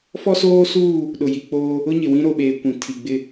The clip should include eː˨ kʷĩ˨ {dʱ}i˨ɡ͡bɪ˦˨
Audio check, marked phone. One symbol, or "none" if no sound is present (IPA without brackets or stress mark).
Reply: tʰ